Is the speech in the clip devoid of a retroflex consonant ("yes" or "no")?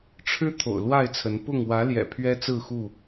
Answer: no